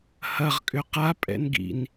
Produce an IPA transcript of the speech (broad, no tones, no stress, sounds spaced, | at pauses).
h ɐ ʁ kʼ ʏ q a pʼ ɛ̰ n ɡ ḭ n